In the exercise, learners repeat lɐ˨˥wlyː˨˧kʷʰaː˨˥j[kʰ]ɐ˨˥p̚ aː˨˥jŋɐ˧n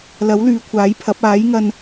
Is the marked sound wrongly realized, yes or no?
yes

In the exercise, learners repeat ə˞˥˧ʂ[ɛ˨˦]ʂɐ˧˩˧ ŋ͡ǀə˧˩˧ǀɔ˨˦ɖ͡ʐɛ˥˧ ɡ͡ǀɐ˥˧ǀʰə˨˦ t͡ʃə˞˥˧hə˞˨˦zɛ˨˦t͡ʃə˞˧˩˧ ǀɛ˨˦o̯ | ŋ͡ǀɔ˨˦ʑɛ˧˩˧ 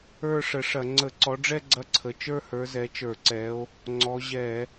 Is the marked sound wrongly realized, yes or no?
yes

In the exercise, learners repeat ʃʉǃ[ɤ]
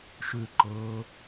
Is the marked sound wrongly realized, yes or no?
no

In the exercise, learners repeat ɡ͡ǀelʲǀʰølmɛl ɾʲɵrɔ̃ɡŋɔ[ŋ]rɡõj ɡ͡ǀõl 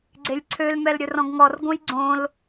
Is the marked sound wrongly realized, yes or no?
yes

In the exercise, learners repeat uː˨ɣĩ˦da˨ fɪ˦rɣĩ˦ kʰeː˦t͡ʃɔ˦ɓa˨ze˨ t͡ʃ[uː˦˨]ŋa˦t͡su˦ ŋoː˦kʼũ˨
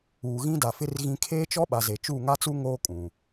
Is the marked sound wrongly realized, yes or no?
no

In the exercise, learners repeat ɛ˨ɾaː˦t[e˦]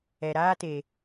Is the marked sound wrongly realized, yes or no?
yes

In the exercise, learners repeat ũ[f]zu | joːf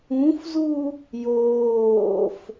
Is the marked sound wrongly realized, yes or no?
no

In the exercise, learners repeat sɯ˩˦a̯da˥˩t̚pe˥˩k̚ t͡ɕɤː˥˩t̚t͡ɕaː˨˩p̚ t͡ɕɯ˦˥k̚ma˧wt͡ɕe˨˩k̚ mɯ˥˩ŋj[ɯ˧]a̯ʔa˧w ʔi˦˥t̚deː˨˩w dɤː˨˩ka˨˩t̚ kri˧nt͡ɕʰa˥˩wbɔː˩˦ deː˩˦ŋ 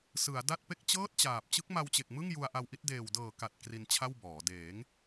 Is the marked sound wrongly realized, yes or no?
yes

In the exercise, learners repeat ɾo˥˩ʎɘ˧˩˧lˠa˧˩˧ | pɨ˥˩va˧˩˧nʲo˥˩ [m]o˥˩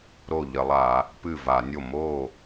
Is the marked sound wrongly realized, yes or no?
no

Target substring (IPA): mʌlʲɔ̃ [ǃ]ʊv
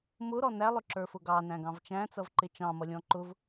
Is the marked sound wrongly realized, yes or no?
no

